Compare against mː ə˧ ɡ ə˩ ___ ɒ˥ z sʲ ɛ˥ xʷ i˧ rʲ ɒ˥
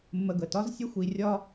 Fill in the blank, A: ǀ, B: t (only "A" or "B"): B